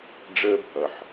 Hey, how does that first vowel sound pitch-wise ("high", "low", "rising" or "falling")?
high